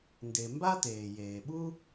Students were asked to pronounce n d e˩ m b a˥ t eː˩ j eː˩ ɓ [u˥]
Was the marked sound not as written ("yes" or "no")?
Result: no